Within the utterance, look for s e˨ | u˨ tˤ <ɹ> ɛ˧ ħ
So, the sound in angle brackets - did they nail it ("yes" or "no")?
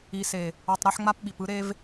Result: no